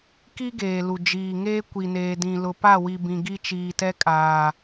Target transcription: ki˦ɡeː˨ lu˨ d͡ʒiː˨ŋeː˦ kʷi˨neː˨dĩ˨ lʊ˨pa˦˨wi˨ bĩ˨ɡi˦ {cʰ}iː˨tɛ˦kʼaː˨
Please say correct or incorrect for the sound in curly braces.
incorrect: t͡ʃ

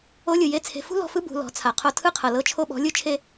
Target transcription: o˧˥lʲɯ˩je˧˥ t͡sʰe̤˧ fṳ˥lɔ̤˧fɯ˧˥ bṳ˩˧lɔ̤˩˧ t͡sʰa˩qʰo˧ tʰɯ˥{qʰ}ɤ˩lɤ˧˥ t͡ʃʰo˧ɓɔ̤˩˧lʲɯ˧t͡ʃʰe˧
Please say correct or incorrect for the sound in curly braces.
correct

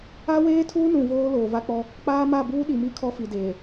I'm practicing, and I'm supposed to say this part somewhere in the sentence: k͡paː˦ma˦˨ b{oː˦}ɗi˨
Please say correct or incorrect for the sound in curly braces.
incorrect: uː˦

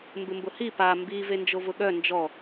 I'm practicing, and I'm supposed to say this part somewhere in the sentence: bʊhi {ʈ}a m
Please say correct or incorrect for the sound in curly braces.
incorrect: p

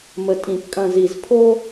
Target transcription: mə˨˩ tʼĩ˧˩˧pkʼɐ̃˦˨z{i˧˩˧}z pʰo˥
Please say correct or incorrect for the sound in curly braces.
correct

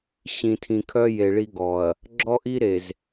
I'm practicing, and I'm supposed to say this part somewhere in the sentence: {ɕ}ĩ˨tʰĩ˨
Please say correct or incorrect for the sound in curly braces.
correct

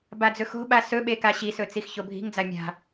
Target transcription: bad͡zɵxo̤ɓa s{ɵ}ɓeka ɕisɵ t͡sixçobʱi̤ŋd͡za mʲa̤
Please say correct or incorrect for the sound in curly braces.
correct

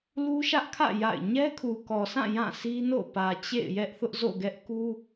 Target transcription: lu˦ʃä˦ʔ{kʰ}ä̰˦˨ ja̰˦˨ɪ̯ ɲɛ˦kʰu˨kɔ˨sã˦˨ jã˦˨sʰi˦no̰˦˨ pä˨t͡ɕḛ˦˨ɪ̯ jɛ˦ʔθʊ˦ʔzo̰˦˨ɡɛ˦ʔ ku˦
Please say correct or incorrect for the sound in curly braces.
correct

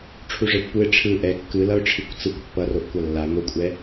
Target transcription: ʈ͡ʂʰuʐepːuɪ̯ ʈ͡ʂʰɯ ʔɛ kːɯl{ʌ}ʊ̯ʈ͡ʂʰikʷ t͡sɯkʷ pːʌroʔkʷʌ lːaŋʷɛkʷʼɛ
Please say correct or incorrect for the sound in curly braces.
correct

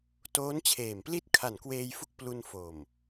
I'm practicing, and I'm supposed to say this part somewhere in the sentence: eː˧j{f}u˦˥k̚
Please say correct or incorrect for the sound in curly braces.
correct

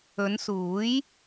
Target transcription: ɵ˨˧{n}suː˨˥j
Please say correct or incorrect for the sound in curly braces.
correct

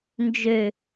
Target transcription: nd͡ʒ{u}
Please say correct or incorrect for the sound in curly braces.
incorrect: ø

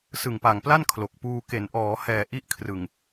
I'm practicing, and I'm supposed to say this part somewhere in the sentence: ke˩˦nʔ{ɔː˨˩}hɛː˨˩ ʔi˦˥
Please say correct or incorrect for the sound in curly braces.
incorrect: ɔː˩˦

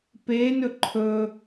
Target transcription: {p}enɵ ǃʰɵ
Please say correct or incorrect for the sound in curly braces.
correct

